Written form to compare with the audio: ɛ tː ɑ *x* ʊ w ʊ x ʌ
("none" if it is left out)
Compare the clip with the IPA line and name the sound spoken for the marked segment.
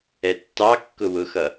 kː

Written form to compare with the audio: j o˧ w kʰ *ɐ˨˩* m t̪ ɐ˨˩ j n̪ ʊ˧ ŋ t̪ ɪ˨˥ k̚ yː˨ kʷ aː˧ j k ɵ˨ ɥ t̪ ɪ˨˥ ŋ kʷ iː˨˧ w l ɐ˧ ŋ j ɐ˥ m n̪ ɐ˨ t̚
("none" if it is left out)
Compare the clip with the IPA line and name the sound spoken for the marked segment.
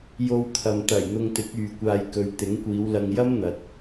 ɐ˨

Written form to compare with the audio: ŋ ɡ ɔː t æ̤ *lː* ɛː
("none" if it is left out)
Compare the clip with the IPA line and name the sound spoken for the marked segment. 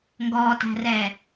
r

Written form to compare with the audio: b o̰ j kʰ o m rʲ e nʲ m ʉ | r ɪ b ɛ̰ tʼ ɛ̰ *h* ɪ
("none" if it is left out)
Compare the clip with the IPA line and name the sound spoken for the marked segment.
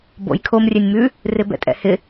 h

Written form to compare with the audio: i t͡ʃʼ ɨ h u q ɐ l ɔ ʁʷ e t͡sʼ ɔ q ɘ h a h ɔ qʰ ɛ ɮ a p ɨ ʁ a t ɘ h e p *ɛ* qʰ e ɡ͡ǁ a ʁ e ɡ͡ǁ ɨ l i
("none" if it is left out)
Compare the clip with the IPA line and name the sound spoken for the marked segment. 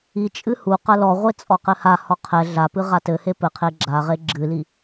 ɘ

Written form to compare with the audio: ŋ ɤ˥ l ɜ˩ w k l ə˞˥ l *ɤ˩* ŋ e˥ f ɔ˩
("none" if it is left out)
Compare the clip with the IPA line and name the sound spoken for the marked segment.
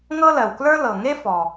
ɤ˩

